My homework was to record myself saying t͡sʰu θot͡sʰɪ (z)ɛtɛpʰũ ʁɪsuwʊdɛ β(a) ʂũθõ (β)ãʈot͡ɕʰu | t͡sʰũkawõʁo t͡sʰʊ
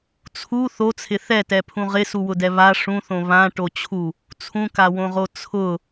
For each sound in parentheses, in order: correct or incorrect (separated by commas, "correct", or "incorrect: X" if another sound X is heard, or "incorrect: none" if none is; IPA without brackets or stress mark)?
incorrect: θ, correct, correct